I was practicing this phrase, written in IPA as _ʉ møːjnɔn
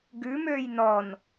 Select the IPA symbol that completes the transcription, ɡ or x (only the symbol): ɡ